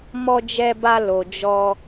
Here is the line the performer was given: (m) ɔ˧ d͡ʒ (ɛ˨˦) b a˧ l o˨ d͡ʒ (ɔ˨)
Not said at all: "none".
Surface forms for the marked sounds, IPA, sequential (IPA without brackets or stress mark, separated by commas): m, ɛ˧, ɔ˧